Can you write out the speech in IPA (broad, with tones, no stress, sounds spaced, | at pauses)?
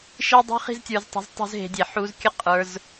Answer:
ʃ i˧ dˤ i̤˧ χ i̤˦ z tʲ ə˞˧ z tˤ e̤˧ z tˤ ṳ˧ z ɦ e̤˧ dʲ e˨ ħ u˧ z kʲ ə˦ qʼ ə˞˧ z